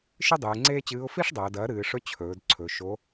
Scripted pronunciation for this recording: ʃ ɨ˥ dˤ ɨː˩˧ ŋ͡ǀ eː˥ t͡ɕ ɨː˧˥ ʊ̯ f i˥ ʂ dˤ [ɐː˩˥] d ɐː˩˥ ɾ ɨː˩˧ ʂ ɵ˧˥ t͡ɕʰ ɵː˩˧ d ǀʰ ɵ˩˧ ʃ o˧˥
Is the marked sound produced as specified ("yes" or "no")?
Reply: no